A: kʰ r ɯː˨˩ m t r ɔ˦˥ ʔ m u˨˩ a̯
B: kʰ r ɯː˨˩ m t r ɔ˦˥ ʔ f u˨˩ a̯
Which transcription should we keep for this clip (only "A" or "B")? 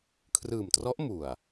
A